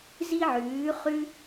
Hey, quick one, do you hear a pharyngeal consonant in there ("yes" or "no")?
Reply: yes